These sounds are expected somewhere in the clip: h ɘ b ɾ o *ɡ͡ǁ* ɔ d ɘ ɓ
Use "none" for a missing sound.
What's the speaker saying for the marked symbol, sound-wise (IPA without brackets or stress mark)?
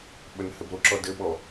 ǁ